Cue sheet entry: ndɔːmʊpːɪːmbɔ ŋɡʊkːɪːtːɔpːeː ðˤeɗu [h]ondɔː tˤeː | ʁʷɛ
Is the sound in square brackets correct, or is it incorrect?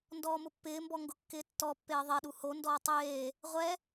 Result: correct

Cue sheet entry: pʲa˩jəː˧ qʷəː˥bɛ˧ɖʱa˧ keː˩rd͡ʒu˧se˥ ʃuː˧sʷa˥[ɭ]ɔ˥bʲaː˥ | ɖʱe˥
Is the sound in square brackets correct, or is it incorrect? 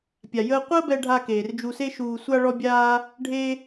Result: correct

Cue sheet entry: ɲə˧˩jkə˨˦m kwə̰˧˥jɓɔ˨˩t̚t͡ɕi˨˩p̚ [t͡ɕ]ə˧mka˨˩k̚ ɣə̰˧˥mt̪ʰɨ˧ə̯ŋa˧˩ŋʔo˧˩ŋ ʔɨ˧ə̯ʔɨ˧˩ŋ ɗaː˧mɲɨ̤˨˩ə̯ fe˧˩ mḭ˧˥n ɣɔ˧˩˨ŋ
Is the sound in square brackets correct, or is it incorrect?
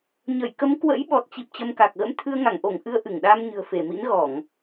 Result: correct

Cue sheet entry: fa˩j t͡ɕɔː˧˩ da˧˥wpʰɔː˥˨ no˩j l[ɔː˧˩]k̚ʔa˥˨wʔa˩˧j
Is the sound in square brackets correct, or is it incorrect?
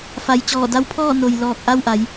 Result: correct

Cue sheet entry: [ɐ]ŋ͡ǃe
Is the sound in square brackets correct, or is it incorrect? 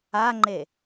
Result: incorrect: a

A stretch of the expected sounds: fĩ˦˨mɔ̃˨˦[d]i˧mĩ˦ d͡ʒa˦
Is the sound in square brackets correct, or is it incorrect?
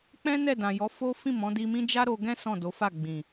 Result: correct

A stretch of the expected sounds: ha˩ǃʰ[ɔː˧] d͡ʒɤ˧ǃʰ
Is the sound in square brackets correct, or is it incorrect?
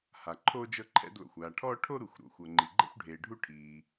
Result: incorrect: oː˧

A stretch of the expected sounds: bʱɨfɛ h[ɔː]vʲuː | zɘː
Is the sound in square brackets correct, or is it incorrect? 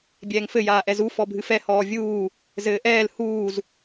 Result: correct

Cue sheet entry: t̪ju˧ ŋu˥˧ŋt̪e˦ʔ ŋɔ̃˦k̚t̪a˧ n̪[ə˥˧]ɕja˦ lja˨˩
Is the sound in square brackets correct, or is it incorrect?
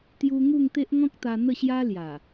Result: correct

